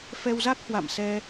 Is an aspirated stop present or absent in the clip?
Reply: absent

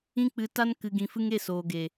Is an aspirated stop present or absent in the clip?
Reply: absent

